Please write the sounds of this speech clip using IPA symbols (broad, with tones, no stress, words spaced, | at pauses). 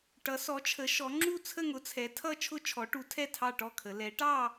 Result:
ʈʌ˨˦sɔ˨˦t͡ʃʰə˨˦ ʃɔ˨˦ŋ͡ǁu˥˧ t͡sʰə˥˧ŋʊ˨˦t͡sʰɛ˨˦ tʰʌ˥˧ t͡ʃʰʊ˥˧t͡ʃʰɔ˨˦ʈu˨˦tʰɛ˥˧ tʰɑ˥˧ʈɔ˥˧kʰə˨˦ lɛ˨˦ʈɑ˥˧